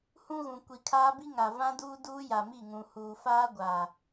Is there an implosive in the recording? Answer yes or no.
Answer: no